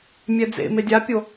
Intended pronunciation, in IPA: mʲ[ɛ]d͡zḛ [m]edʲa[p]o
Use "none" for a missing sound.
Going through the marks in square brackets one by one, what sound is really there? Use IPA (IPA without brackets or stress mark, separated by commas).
ɛ, m, pʲ